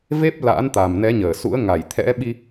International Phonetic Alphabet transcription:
v e˦˥ p̚ l a̰ː˧˥ n t̪ a˨˩ m n ɛ˨˦ ɲ əː˧˩ s ṵ˧˥ ə̯ ŋ a˧˩ j t̪ʰ ɛ̰˧˥ ɓ i˧

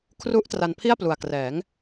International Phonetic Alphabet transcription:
kʰ r u˦˥ ʔ t r a˧ n pʰ i˥˩ a̯ p l u˨˩ a̯ k r ɛː˩˦ ŋ

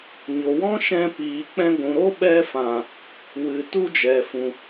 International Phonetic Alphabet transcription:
ɲ o˨ w ɔ̃˦ ʃ ɛ̃˧ p iː˨ k͡p ɛ̃˧ ɡʷ ũ˨ ɾ o˦ ɓ ɛ˧ f ã˨ | w ɨ˨ t u˦ d͡ʒ ɛ˨ f ũ˨

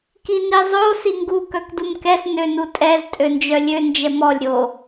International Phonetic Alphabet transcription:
k i n i zˤ o s i ŋ ɡ u k œ k d u m k ɛ s n ø n u tʼ ɛ z tʼ ø n d͡ʒ œ lʲ ø n d͡ʒ ɛ m ɔ lʲ ɾʲ o

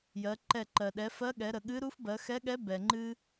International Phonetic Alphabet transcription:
j ɜ˩˧ ǃ ɛ˧˩ ǃ ɜ˩ ɗ ɛ˩˧ f ɜ˧˥ ɠ ɛ˩˧ ɾ ə˩ ɠ ɨ˧˥ ɾ u˧˥ f b ɜ˩˧ x ɛ˧˥ ɠ ɛ˧˥ b ɛ˩ ŋ͡ǃ ɨ˧

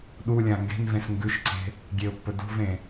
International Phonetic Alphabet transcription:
ɗ u lʲ ã ŋ ɡ e̤ n v ẽ s ŋ ɡ ʉ ʃ ǀ e̤ | ɡʲ e ʊ̯ pː ɵ d ṳ v ẽ

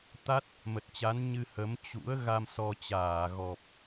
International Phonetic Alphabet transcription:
t̪ a˦˥ t̚ | m ə˨˩ t̚ t͡ɕ a˨˦ n ɲ ɨ˧ h ə˨˦ m t͡ɕ ṵ˧˥ ə̯ ɣ a˧ m s ɔ˧ t͡ɕ aː˧˩ ɣ ɔ˨˩ p̚

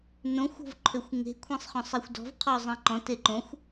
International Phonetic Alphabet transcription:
n õ xʷ o̤ v ǃʰ ʏ xʷ ŋ e̤ kʷʰ ẽ sˤ χ ɔ̃ sˤ e xʷ d ɔ̤ v qʰ ɔ zˤ ẽ ǃ ɔ̃ t e ǃ õ xʷ

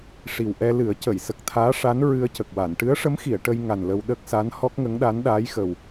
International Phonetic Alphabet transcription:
ʂ i˨˩ w ʔ ɛ˧ l ɨ˨˩˦ ə̯ c ə˨˩˨ j s ə˨˩ k̚ t̪ʰ aː˧˥ ʂ a˧˥ n ɹ ɨ˧ ə̯ c ə˨˩ k̚ w a˨˩˨ n ʈ ɨ˧˥ ə̯ ʂ ə˧˥ m x i˨˩˨ ə̯ ʈ ə˧ j ŋ a˨˩ n l ə˧ w ɗ ə˦˥ k̚ s a˧˥ n h ɔ˦˥ k̚ ŋ ə˧˥ ŋ ɗ a˧˥ n ɗ aː˧˥ j x ə˨˩ w

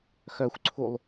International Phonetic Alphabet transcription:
x œ xʷ ǀʰ u lˠ

